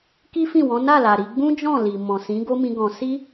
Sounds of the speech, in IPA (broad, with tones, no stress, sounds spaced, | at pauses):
k i˦ f ĩ˦˨ w ɔ̃˨˦ n a˦˨ l a˨ ɾ i˧ ɡ͡b ũ˦ d͡ʒ ɔ̃˦˨ l i˨ m ɔ̃˨ s ĩ˨˦ ɡ o˦ m ĩ˧ ɡ ɔ̃˧ s i˦